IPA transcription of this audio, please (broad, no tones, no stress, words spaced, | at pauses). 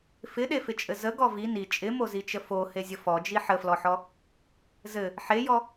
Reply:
fɪɗefɪt͡ʃʼɘ zəɡɔ vi ni t͡ʃʼɪmozit͡ʃə fohezʲə fɔd͡ʒi ħəflɔħɔ | zɘ | ħejɔ